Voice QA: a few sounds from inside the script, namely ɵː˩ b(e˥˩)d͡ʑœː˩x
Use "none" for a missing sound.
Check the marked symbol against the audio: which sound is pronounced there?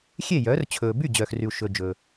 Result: y˥˩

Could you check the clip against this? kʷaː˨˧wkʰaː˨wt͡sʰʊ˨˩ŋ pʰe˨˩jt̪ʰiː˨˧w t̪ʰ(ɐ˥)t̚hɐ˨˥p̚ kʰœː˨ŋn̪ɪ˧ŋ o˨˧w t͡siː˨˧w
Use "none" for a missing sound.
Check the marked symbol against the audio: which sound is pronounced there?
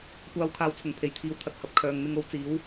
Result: ɐ˨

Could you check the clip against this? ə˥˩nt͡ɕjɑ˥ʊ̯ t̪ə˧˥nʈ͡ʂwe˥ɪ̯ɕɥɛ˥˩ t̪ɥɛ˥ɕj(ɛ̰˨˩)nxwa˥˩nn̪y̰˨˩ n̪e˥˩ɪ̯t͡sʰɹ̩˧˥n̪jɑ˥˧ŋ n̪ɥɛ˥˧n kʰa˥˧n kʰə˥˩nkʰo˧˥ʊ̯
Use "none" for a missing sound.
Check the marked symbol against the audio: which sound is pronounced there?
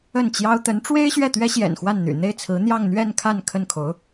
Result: ɛ̰˨˩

